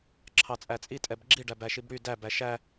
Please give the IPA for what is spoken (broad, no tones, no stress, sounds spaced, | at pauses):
ǁʰ ɑ t͡sʼ æ t͡sʼ i tʼ ɛ b ɡ͡ǁ i ɖ æ b æ ʃ i b ɽ y d æ b æ ʃ æ